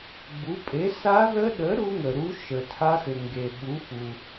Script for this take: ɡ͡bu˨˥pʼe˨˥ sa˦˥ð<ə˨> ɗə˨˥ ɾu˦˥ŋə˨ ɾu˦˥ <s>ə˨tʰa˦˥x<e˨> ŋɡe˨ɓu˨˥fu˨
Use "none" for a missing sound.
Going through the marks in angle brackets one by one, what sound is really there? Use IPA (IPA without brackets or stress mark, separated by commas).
ə˦˥, ʃ, ɘ˨